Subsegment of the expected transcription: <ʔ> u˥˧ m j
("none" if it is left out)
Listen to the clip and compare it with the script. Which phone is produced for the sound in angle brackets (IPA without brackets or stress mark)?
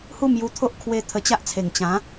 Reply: h